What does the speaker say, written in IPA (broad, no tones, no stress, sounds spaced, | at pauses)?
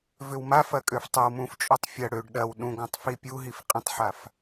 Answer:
v ʏ w m a f ɐ kʼ ø f tˤ ə w m ũ f t͡ʃʼ u tˤ fʲ ɐ ɽ ø ɖ ɗ ɐ w ɗ ũ ɡ ɔ̃ tˤ f i pʲ u ɦ i f qʼ ĩ tˤ ħ a f